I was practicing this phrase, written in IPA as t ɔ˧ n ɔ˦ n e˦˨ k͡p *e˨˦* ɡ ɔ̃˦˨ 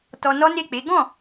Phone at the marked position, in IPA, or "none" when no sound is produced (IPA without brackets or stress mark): e˨˦